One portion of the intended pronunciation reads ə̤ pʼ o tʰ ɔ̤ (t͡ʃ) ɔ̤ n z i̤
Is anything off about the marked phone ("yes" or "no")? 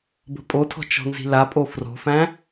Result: no